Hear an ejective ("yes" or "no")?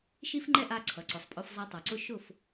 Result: yes